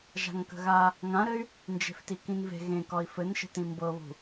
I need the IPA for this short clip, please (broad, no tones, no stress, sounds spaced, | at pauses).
ʒ a̤ ŋ k ə̤ ɣ a | ŋ ã ɾ ɘ y̯ | n d͡ʒ e̤ f t i k ĩ n v e̤ ɣ ẽ k ɒ i̯ f ɘ n ʃ ə̤ t ĩ m b ɤ β ṳ